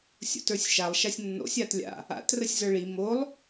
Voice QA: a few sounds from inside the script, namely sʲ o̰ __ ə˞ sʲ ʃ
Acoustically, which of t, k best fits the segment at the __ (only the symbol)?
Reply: t